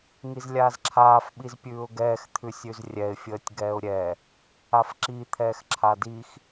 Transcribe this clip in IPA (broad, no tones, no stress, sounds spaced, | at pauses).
ŋ i z lʲ aː z ǁʰ aː f ɓ i z pʲ ʉː ʊ̯ ɡ ɛː x t̪ʰ ʉ sʲ ʉ z rʲ ɛ ɪ̯ fʲ əː tʲ ɡ ɛː ʊ̯ ɾʲ ɛ | a f ǁ i t̪ʰ ɛː x ǁʰ a d i x